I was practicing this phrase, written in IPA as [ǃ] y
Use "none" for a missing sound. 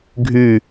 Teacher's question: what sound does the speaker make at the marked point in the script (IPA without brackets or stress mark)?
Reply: ɡʱ